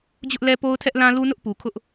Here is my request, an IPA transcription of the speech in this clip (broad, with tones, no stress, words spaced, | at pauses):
d͡ʑʊ˦ʔlɛ˦ po˦ʊ̯tʰɛ˦ʔlã˦ lu˦nʊ˦ʔpu˨ kʰʊ˦ʔ